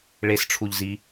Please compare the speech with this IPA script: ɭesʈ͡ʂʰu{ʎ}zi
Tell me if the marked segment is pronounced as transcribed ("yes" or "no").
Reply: yes